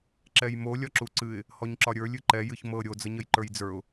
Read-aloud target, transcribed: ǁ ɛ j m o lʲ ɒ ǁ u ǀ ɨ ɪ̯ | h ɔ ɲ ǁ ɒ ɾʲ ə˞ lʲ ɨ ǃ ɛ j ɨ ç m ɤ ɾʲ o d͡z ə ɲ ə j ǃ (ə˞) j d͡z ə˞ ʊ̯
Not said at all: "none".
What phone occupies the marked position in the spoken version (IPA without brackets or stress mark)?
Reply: ə˞